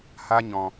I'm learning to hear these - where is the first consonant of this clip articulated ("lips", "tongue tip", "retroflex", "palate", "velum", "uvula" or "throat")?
throat